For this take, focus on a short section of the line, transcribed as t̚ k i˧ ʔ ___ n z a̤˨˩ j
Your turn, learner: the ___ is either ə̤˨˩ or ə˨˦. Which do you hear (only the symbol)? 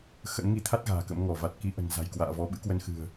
ə̤˨˩